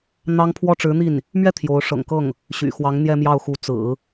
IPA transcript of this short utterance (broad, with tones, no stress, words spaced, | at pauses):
n̪ɑ˥ŋ pʰwɔ˥˩ʈ͡ʂɻ̩˧˥n̪i˥˩n | mɥɛ˥˩ t̪ʰjo˧˥ʊ̯ ʂɤ̰˨˩ŋkɤ˥˩ŋ | ɕy̰˨˩xwɑ˧˥ŋ n̪jɛ˥˧mjɑ˥˩ʊ̯xu˧˥ t͡sɹ̩˨˩˦